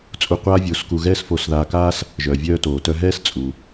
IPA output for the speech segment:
t͡sʼu˧ qʷaː˥vʲoː˧sku˧ ɣɛː˥sfoː˧sðaː˧kaː˥s | ʒœː˩vʲœː˧ toː˩tœ˧ɦɛː˥s t͡sʼu˩

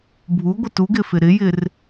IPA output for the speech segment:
bʱuɡʷɪ tuɡɪfɪ ɾɪjɪr

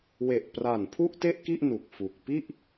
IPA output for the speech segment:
we˨˩ʔpra˨˩npʰu˥˩ʔte˥˩ʔ ki˥˩ʔnu˨˩k̚ fu˨˩k̚ pi˥˩ʔ

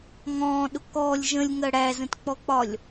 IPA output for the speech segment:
ŋɔ̃ːɗʊ kɔlʲ ʒə̃lʲŋɜ ɽæzə̃tk͡pɔk͡pɒlʲ

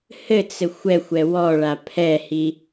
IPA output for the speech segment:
hɘt͡sɘ xʷɛxʷɛ wɔɭa pʰɛhi

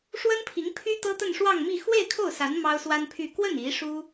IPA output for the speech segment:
ʂwə˥npʰi˧˥ŋpʰy˥ t̪ɤ˥t̪ə˥˧nʂwɑ˥˧ŋmi˥˧ xwe˥˧ɪ̯ kʰo˥˩ʊ̯sa˧˥n mɑ˥ʊ̯swa˥npʰy˥˧ kwə˥˩n i˧˥ ʂu˥

